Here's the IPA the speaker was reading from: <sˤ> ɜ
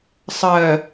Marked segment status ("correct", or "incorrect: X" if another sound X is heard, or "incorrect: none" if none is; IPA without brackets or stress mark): correct